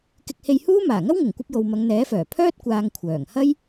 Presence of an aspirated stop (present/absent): present